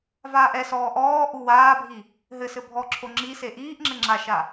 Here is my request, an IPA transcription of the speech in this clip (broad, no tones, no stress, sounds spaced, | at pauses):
v aː ʔ ɛ s ɔː ʔ ɔː ʔ u w aː bʱ i | ɦ ɘ s ɘ bʱ ɔ ǁʰ o ŋ͡ǁ i s e ʔ iː ʔ ŋ͡ǁ ɘ ŋ͡ǁ a ʃ a